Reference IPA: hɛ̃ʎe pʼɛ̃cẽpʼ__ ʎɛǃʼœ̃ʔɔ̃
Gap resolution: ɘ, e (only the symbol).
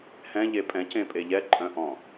e